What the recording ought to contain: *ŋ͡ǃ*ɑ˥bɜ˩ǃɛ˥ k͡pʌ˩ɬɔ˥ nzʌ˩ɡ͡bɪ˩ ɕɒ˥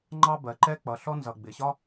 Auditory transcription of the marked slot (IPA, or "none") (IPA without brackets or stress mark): ŋ͡ǃ